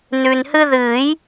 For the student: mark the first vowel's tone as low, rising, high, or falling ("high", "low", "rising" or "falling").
low